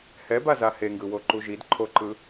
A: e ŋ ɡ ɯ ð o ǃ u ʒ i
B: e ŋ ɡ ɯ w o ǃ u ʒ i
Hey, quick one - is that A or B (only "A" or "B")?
B